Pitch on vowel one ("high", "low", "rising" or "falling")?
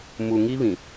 low